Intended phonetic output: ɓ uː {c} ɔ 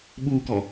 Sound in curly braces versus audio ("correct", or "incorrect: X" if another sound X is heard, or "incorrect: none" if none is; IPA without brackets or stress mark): incorrect: k